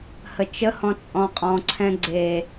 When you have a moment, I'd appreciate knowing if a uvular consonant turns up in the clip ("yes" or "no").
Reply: yes